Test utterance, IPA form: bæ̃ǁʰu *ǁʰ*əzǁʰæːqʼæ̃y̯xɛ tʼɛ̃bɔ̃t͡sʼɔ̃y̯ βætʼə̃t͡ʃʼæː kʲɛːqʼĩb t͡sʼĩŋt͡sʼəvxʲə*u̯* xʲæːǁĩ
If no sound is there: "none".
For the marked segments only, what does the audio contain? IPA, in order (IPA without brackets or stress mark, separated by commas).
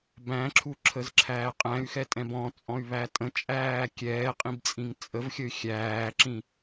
ǁʰ, y̯